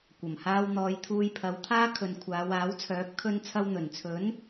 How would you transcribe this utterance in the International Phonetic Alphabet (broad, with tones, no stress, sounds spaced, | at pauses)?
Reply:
kʷ ɐ˨˩ m h aː˧ w n̪ ɔː˨˧ j t̪ʰ uː˧ j pʰ ɐ˨˧ w t̪ʰ aː˥ kʰ ɵ˨ n kʷʰ aː˨˧ w aː˨˥ w t͡sʰ œː˨˥ p̚ kʰ ɵ˧ n t͡sʰ ɐ˧ w n̪ ɵ˨˩ n t͡sʰ ɵ˨˥ n